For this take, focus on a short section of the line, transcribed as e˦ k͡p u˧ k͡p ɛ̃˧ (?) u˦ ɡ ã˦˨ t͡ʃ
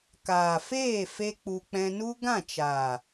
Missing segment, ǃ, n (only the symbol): n